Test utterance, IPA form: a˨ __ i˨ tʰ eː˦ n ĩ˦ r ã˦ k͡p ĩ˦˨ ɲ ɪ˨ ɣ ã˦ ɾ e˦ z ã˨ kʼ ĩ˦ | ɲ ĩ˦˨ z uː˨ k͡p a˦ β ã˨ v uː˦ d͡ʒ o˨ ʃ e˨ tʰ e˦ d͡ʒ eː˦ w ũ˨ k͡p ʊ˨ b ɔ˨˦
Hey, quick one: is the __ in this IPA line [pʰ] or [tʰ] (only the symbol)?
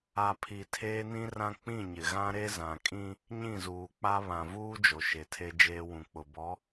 pʰ